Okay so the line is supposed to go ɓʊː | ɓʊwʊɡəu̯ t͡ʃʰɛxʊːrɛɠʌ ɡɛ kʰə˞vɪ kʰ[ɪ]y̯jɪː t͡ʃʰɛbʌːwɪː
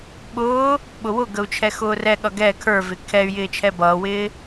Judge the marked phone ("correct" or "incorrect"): incorrect